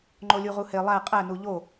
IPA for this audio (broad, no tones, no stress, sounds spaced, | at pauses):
ŋ͡ǃ o lʲ u ʁ u h e lˠ æ qʼ æ n u ʎ o